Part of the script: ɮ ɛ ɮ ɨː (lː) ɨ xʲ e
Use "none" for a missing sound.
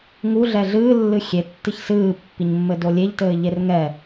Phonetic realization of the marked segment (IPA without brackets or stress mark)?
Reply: lː